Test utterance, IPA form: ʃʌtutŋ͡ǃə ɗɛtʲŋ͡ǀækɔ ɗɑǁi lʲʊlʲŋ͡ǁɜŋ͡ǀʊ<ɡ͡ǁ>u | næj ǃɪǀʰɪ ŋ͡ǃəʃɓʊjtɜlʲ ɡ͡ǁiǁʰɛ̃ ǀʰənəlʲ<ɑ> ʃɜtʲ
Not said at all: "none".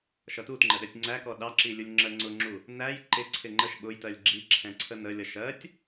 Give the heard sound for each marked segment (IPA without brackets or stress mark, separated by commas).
ŋ͡ǁ, ʌ